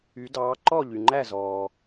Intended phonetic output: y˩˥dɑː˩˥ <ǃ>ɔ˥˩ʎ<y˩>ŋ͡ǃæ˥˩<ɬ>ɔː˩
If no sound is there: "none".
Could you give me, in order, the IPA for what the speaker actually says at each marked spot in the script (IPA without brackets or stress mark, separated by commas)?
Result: ǃ, y˩, z